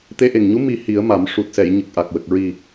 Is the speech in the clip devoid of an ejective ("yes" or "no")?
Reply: yes